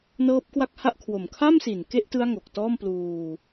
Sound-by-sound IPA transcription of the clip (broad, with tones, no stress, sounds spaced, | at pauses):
n ɤː˦˥ p̚ k w a˥˩ k̚ h a˥˩ ʔ kʰ w o˨˩ m kʰ a˥˩ m s i˨˩ n k e˥˩ ʔ t ɯ˦˥ a̯ ŋ o˨˩ k̚ t ɔː˥˩ m p l uː˧